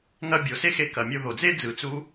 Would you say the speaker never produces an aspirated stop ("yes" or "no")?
yes